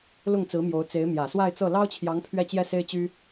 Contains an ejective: no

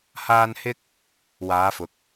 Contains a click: no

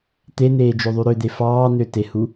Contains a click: no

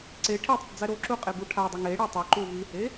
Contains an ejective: yes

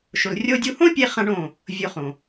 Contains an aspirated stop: no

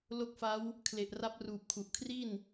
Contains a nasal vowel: no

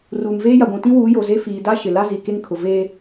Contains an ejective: no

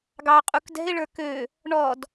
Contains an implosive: no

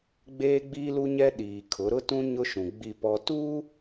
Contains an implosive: yes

